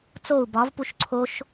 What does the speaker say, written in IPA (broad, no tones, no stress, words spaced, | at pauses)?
t͡sou̯ bɒvpuʃ ǀʰoʃ